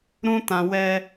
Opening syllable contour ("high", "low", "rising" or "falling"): high